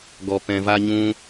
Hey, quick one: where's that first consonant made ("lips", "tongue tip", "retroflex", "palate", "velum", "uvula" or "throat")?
velum